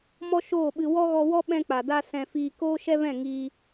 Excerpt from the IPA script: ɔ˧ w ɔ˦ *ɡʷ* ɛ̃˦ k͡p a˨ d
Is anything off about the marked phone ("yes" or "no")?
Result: yes